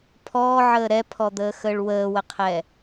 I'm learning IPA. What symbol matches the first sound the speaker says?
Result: pʰ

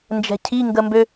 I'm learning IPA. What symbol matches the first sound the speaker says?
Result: n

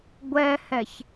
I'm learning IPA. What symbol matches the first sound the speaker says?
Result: ɡʷ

